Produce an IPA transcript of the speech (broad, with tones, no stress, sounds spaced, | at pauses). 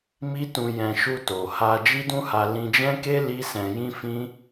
m i˦ t ũ˧ j ɛ̃˧ ʃ u˧ t o˨ h a˧ d͡ʒ i˦ d ũ˦ h a˧ l ĩ˧ d͡ʒ ɛ̃˦ k e˦ l i˦ s ɛ̃˧ j ĩ˦ f ĩ˦